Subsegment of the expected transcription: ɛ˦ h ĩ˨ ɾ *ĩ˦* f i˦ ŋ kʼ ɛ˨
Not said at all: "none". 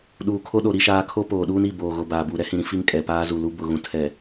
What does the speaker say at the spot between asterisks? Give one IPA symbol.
ĩ˦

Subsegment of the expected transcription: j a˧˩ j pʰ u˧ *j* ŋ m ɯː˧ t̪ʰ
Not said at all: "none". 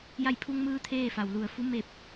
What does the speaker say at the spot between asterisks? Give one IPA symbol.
none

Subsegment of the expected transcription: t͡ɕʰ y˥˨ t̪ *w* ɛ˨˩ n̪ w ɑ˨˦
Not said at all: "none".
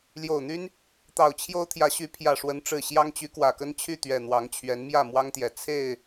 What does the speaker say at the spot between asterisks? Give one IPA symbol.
ɥ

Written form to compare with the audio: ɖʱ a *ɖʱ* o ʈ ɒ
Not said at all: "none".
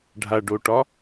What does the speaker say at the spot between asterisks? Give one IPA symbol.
ɖ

